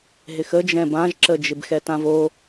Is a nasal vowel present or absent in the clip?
present